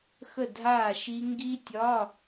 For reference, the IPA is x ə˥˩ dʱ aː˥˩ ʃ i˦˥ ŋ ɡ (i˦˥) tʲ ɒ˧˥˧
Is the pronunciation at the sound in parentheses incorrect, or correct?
correct